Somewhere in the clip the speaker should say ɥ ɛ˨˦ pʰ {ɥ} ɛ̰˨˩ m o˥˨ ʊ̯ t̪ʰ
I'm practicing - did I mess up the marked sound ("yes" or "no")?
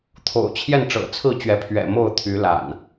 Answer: no